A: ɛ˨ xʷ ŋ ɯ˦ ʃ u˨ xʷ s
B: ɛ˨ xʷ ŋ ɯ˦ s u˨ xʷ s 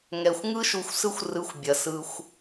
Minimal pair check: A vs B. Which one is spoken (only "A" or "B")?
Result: A